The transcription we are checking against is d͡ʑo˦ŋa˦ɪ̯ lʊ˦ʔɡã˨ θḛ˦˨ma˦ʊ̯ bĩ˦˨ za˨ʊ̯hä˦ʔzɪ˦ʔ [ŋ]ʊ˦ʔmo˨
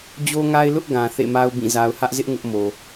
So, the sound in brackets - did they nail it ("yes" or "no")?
yes